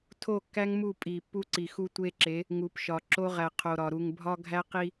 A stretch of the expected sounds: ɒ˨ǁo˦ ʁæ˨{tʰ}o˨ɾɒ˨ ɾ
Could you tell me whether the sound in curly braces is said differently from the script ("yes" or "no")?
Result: yes